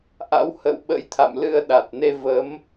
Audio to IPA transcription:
ʔ a̰˧˥ w h ə̰ː˧˨ w ɓ ə̰˧˥ j t̪ʰ a̰˧˨ m l ɨ˧ ə̯ ɗ a˨˩ t̚ n e˧ v ə˨˦ m

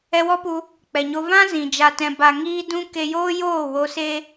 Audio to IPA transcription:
ɛ˧ w ɔ˦ p u˧ | k͡p ɛ˨ ɲ o˧ v ã˦ z ĩ˨ d͡ʒ a˧ t ɛ̃˧ b a˧ ŋ iː˦ d ũ˦ k e˧ j oː˦ j oː˦˨ w o˧ s e˦

